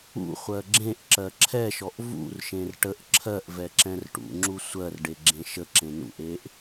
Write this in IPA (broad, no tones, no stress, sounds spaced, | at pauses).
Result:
ṵ χʷ ɜ ɡ͡ǁ ẽ ʔ ǁ ɜ ǁʰ ɛ ʃ ɔ ʔ v ṵ r ʃ ẽ r ʈ ə ʔ ǁʰ ɜ ʔ v ɛ ǁ ɛ̃ r ʈ ṵ ŋ͡ǁ u sʷ ɜ r ɖ e ɡ͡ǁ ẽ ʃ ə ǁ ẽ n ṵ ʔ e ʔ